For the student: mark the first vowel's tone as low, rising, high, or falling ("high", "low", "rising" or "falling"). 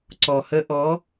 low